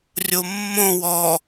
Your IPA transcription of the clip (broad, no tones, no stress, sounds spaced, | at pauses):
rʲ o mː õ w ɔ